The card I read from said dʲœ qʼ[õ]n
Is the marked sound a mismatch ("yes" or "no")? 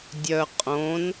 no